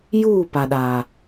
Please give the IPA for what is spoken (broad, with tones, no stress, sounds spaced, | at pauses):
j uː˦˨ p a˨ ɗ aː˨